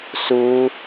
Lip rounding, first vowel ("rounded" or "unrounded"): rounded